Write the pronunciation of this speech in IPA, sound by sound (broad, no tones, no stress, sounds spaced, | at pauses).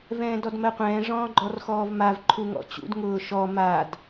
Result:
v ɛ̃ː d ɔ d m ɜ qʷ ɛ̃ː ʐ ɔ̃ː ɡ͡ǃ ɔ r x ɔː v m a v ǃʰ u ŋ ɔ̰ t͡ɕ ṵ d ŋ ʊː ʃ ɔ m a d